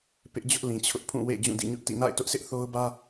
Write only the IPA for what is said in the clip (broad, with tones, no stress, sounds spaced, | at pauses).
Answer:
p ɪ˦ ʔ d͡ʑ ʊ˦ ʔ l ĩ˨ t͡ɕʰ ʊ˦ ʔ pʰ ũ˦˨ w ḛ˦˨ d͡ʑ ũ˦˨ d ḭ˦˨ ɲ ʊ˦ ʔ t ḭ˦˨ n a̰˦˨ ɪ̯ t ʊ˦ ʔ sʰ ɪ˦ ʔ θ o˦ ʊ̯ b ä˦